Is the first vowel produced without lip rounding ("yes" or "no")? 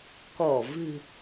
no